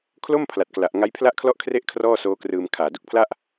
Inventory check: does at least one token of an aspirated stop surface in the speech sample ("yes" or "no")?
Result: yes